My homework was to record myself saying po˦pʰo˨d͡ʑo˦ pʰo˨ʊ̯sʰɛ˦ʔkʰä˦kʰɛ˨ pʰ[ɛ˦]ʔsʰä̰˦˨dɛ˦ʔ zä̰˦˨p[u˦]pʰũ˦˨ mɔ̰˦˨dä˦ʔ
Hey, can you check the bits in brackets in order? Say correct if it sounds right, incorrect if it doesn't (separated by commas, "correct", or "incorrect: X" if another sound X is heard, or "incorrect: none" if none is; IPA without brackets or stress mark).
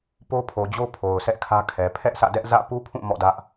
correct, correct